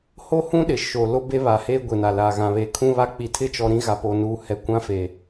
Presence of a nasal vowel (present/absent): present